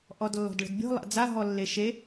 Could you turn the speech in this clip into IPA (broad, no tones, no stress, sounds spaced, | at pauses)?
ʔ ɔ d lː ɔ̤ d ɭ ə̤ d bʲ ɔ̤ lˠ a̰ d͡z a ɦ ɔ lː e ʃ e